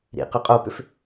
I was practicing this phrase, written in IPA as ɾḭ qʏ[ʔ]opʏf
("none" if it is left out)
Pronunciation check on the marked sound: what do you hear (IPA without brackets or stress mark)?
qʼ